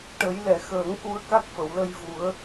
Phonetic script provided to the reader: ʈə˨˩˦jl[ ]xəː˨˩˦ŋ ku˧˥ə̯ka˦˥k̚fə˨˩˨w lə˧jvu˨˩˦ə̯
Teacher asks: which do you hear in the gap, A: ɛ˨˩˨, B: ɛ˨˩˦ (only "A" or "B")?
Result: A